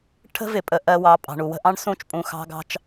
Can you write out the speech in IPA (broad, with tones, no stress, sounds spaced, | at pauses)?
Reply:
ʈʰ ə̤˦ v ɪ˨ pʼ ə˨ ʔ ɜ˦ w ɑ˨˦ pʼ ɑ̤˨ ɳ u˨ w ə̤˦ ʔ ɑ̃˦ ɳ s ũ˦˨ t͡ʃ pʼ ũ˨ x ɑ̤˦ ɡ ɑ̤˦ t͡ʃ